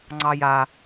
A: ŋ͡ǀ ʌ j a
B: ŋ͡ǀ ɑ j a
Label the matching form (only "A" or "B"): B